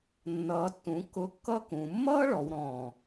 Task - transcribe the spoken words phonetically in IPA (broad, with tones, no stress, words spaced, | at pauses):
nːʌː˩˧tːũ˩˧ kːʊ˧˥˧kːʌː˥kũ˩˧ mːʌː˥ɭɔ˩˧wɾɔ̃ː˨˩